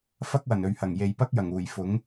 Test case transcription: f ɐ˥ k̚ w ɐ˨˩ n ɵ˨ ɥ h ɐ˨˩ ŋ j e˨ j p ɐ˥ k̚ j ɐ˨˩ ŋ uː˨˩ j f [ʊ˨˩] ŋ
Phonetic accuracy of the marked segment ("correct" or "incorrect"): incorrect